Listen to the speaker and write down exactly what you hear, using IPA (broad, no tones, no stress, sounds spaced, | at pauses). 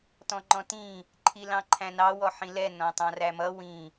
t ɔ̃ ŋ͡ǃ ɔ̃ t ĩ | ǃʰ i l ɑ̃ ǃʰ æ̃ n ɑ w ɔ ħ ĩ l ɛ n ɔ̃ tˤ ɑ̃ r æ m ʌ w ĩ